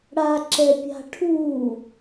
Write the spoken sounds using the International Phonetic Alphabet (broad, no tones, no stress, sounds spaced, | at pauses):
ɽ a ǁ ɛ pʲ a̤ ʈʰ uː